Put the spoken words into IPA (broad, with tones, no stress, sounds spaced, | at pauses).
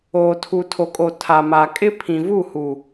oː˨ tʰ u˨ tʰ o˨ kʼ o˨ tʰ a˨ m a˨ kʼ ɪ˦ pʰ ĩ˨ v u˦˨ h u˨